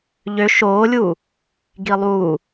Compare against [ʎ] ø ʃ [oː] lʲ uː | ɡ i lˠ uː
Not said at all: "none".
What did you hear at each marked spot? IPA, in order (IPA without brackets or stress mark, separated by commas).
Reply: ʎ, oː